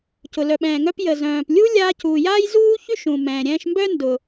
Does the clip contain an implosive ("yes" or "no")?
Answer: yes